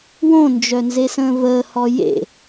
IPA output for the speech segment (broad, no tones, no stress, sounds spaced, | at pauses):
w õ n d͡ʒ œ n z e s ə̃ː v əː h ɔ j ḛ